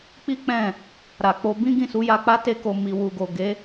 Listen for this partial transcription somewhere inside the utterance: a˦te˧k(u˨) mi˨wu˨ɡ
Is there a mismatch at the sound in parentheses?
yes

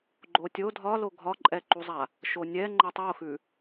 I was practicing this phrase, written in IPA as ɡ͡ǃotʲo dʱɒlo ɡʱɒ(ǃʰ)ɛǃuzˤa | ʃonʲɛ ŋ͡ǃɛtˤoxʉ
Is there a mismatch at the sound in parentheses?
yes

